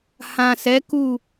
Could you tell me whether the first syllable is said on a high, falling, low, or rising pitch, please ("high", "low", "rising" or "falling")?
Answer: low